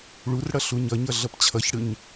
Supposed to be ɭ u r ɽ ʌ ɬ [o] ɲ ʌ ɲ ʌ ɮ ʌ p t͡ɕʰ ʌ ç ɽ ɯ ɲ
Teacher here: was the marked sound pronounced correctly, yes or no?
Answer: no